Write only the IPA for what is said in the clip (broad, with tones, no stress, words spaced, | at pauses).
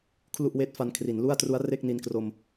kʰlu˥˩ʔweː˦˥t̚fa˧n kʰri˩˦nlu˥˩a̯tru˦˥a̯ re˥˩k̚ni˧nkro˧m